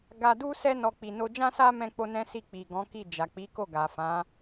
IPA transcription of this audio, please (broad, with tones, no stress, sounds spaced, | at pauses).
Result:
ɡ a˧ d u˦ s ɛ˦ n ɔ˧ k͡p i˨ n o˧ d͡ʒ ã˦ s a˦ m ɛ̃˧ k͡p o˧ n ɛ̃˦ s i˦˨ k͡p i˨ ɡ ɔ̃˨˦ k i˦˨ d͡ʒ a˨ k͡p i˨˦ k o˦˨ ɡ a˨ f ã˨˦